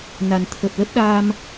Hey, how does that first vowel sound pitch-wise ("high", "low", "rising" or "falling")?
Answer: low